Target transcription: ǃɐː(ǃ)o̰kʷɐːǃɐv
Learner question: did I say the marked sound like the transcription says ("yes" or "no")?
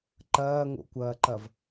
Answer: no